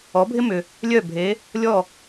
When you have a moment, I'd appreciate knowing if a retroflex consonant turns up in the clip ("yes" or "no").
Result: no